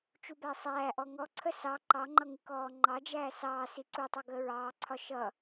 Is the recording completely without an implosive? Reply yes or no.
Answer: yes